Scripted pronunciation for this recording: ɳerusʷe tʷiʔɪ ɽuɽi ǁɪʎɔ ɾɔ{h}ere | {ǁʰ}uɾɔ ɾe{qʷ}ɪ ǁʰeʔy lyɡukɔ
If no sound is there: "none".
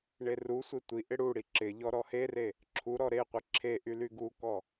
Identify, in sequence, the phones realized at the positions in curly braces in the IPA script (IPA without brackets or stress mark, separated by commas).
h, ǁʰ, qʷ